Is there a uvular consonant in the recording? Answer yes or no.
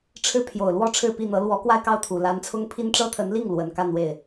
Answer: no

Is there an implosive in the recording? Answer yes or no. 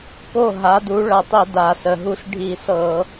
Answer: no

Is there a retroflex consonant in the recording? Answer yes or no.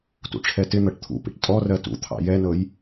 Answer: yes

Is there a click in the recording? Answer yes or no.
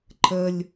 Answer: yes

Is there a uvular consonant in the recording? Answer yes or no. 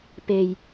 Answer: no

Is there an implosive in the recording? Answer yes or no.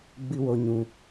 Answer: no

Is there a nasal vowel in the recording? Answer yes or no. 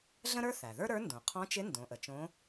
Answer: yes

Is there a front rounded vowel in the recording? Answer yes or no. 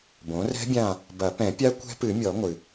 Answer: no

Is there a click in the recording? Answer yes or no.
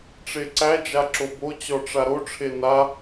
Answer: yes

